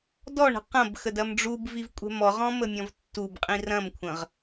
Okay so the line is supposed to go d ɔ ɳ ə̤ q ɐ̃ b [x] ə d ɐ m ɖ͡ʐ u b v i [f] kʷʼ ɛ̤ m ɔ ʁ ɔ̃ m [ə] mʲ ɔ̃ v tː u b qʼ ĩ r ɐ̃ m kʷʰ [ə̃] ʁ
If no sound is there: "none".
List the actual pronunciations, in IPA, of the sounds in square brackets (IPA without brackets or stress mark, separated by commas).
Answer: x, v, ə, ə̃